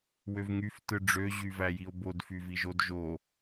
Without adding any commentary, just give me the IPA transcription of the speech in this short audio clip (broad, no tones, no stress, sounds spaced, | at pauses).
w ø v ŋ y f t ɯ ɖ͡ʐ ø ʑ y v æ j i o̯ b o d f y v i ʒ o d ʒ o